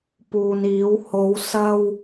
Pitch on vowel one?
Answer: low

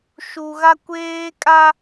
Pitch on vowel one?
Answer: low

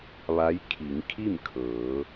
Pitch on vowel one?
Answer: rising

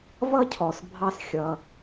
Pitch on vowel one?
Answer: high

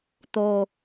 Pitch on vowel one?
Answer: low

